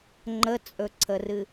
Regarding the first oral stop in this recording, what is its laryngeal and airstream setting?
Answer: click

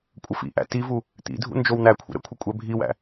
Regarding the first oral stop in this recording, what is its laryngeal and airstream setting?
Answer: ejective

